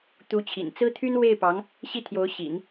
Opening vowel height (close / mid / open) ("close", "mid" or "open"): close